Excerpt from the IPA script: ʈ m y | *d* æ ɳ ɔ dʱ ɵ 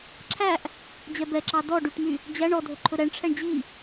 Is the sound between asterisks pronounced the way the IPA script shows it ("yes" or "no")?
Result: no